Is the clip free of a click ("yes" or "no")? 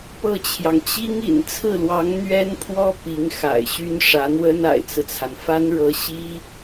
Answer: yes